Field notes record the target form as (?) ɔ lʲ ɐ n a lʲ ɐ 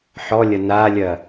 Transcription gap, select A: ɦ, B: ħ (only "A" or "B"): B